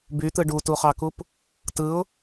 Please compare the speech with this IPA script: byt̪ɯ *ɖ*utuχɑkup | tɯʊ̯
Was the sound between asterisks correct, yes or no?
yes